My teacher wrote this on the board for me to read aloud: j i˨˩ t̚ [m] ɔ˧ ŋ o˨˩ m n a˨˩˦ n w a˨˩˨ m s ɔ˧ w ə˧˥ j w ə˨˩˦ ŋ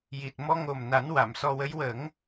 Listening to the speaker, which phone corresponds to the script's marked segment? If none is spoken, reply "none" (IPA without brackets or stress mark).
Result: m